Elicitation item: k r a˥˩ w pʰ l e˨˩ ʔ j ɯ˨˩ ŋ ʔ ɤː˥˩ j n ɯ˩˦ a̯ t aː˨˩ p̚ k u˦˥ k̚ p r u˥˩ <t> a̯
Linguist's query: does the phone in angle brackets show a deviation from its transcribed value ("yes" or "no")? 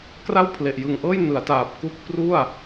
yes